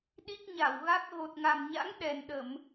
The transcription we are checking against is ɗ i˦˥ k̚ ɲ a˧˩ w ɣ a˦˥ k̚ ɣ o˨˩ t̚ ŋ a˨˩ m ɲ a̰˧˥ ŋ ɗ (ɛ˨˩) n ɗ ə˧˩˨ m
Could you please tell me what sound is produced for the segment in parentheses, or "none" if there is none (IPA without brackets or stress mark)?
ɛ˨˩